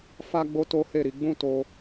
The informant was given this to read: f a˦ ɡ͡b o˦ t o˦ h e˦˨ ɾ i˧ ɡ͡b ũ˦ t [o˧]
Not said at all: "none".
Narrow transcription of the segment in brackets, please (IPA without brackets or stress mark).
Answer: o˧